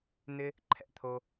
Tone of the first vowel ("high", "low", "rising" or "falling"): low